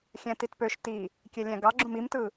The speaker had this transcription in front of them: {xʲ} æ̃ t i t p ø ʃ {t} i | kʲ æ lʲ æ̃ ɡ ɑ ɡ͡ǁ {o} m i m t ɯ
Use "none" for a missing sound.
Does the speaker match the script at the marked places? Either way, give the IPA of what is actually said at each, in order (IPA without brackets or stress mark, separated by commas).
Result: xʲ, t, õ